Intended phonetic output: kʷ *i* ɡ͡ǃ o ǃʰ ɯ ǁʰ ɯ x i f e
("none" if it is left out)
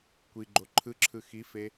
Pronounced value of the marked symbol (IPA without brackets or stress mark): i